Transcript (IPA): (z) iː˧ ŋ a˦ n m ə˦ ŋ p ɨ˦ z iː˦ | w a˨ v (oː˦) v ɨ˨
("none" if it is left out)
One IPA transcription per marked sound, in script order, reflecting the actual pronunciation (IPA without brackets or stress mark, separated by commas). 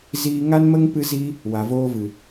z, oː˦